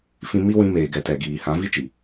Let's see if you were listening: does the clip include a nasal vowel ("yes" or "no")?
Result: yes